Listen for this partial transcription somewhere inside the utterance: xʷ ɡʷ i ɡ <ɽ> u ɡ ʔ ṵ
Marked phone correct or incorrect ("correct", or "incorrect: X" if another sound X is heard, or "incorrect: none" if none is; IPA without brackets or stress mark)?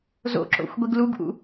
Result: incorrect: l